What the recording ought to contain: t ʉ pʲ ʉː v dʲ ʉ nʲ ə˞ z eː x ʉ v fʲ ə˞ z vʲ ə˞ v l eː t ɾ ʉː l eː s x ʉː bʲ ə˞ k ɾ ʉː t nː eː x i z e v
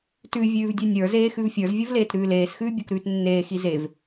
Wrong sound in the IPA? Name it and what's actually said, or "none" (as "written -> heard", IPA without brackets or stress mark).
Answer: pʲ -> vʲ